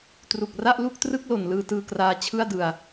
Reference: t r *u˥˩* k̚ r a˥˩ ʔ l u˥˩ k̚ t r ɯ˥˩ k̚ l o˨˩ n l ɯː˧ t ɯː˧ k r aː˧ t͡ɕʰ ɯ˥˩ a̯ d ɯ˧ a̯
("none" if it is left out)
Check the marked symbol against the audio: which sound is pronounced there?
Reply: u˨˩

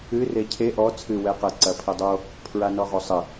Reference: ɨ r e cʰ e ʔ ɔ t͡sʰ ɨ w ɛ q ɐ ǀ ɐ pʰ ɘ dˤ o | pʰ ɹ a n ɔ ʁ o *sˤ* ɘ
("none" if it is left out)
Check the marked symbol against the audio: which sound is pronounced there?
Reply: sˤ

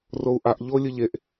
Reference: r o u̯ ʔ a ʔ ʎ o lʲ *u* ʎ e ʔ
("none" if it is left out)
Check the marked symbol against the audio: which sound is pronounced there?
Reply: ɯ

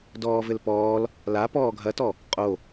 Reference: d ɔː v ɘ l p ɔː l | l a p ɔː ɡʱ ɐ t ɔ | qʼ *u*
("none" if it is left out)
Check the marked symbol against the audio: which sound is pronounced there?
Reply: o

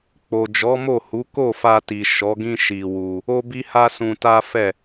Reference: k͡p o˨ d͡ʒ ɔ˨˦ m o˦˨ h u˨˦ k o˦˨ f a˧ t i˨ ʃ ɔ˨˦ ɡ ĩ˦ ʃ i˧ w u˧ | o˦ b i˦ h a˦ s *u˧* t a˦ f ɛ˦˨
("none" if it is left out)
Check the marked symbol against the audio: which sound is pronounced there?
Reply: ũ˧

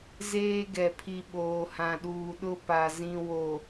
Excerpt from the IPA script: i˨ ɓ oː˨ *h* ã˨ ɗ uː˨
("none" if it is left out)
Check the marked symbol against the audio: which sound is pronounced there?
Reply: h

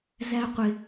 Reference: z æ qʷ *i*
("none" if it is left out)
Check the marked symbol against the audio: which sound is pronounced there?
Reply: ɪ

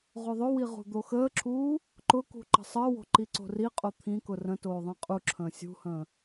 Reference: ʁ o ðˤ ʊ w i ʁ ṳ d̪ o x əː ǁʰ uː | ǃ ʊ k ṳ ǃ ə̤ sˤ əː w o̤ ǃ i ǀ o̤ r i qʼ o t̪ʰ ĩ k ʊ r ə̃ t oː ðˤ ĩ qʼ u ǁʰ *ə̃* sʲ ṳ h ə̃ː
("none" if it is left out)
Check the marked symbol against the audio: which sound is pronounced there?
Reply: ə̃ː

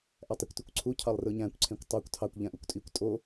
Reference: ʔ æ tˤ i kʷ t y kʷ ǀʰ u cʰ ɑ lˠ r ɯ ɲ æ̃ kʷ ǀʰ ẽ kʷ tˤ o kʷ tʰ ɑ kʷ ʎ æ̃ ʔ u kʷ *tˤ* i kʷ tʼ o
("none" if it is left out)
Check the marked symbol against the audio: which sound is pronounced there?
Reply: tʼ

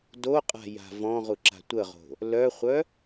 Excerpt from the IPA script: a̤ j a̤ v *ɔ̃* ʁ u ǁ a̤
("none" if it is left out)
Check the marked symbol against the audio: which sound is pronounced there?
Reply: ɔ̃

